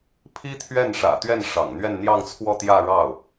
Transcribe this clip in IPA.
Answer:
pʰ i˥ t̪ʰ ɥ ɛ˥˩ n ʂ ä̰˨˩ t̪ ɥ ɛ˥˩ n ʂ ɑ̰˨˩ ŋ n̪ ɥ ɛ˥˧ n n̪ j ɑ˥˧ ŋ t͡sʰ w ɔ˥˧ t̪ j ä˥˧ ɻ ɑ˥˩ ʊ̯

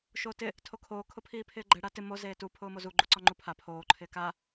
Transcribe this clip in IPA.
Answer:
ʃ oː t ɪ | tʰ o kʰ oː kʰ ʊ pʰ iː pʰ ɪː ɡ͡ǃ ɛ ɽ a t ɪ m o z eː t u pʰ ʊː m o z u ɡ͡ǃ u ǀ ɔ ŋ͡ǃ u pʰ a pʰ oː ǃʰ ɪː k a

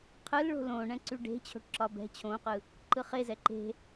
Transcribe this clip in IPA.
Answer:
qʰ ɯ l ɭ o̤ l õ ɳ ɛ̃ ǀ y ɖ e̤ t͡ɕʰ o̤ ʈ ǁ ɒ b ɛ̤ t͡ɕʰ õ q ɯ | ǃ ɯ χ e z ɛ ǃ e̤

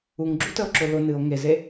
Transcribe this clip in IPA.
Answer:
u ŋ ɡ͡ǁ u t ə o̯ ǁ ʊ l ʊ n ɨ o̯ ŋ e z e

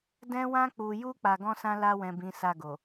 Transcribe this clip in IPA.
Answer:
d ɛ̃˧ w ã˧ k͡p u˨ j u˧ k͡p a˧ ɡ ɔ̃˦ s ã˦ l a˧ w ɛ̃˨ b ĩ˨˦ s a˦˨ ɡ o˨

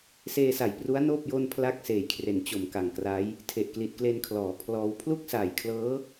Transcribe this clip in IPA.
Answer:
s eː˧ s a˨˩ j p r u˦˥ a̯ n oː˥˩ p̚ j o˥˩ n pʰ l a˥˩ k̚ s eː˨˩ j kʰ r e˩˦ n t͡ɕ o˨˩ m k a˨˩ ŋ k r a˦˥ j | tʰ e˨˩ ʔ k l i˨˩ t̚ k l e˧ n kʰ l ɔː˩˦ pʰ l ɔː˦˥ w pʰ l u˥˩ k̚ s aː˨˩ j kʰ l ɤː˦˥

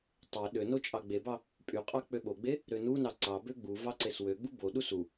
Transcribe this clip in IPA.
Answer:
tˤ e ɗ ø n o t͡ʃʼ ɑ ɡ͡b e b ɑ | pʼ y qʼ ɑ k͡p ø ɓ o ɡ͡b e | ɾ ø n u n ɑ ǀ ɑ b ø ɡ͡b u v ɑ ǀ e s w ø ɡ͡b u b o ɗ u s u

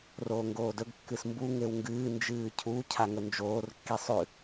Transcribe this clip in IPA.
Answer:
r oː ŋ ɡ oː d ɵ ɡ kː ɨ s m b u ŋ e w ŋ ɡ ɨː n d͡ʒ ɨː cʰ u cʰ a ŋ ɵ n d͡ʒ oː r kː i sˤ ʉ

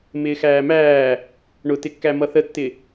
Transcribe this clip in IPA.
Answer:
m ɪː x æː m æː | ɳ ʊ t ɪ kː æ m ʌ θ ə tː ɪ

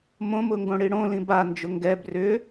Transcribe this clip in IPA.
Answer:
m õ m ʊ ŋ ɡ õ ɽ i ɽ õ l ĩ b a n d͡ʒ ʊ ŋ ɡ ɛ b r ʏ

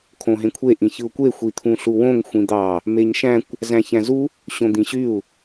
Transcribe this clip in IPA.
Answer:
kʰ õ ɦ ẽ kʷʰ e ʔ ĩ ç ɯ u̯ kʷ e xʷ i t̪ʰ ũ ɬ u w õ ŋ xʷ ĩ d̪ ɑ | m e ɲ ʃ æ̃ kʷ | z æ̃ ç æ̃ z u | ɕ õ d̪ ĩ ɕ y u̯

